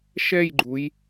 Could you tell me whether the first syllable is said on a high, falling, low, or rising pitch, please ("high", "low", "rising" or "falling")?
falling